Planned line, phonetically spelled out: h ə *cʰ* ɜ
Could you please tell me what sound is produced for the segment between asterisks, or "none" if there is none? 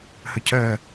cʰ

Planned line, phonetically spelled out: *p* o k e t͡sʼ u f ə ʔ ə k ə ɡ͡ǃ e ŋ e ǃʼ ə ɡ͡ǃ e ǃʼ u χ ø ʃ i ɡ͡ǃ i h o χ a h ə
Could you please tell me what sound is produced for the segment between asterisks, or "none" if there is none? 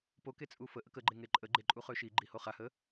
p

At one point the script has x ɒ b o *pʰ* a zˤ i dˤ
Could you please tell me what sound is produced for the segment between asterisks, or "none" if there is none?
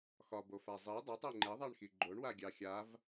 f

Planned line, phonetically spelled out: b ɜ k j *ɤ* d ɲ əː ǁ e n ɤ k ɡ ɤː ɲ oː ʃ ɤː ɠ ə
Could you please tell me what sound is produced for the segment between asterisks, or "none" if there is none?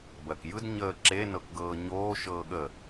ɯ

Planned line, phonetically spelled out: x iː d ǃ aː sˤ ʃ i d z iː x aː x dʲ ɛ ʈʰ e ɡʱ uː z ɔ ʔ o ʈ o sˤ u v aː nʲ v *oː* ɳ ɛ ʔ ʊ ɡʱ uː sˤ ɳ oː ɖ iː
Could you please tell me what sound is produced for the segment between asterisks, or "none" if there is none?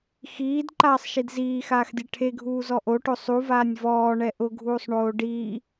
ɔː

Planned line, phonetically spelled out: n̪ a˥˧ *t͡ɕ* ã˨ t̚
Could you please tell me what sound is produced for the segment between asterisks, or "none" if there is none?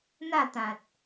t̪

